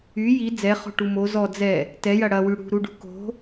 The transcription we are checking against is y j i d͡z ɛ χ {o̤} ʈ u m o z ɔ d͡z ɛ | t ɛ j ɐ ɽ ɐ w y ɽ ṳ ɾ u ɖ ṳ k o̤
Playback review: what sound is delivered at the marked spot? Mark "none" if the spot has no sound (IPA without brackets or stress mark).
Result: o̤